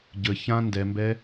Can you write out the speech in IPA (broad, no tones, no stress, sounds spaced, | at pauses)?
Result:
ɟ ə ç ã n d ɛ m b ɛ